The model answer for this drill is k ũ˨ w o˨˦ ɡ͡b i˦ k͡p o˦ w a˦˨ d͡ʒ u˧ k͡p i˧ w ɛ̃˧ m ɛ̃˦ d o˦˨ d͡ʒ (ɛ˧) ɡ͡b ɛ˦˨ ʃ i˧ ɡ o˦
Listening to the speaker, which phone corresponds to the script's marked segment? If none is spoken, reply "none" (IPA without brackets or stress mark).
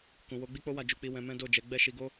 ɛ˨˦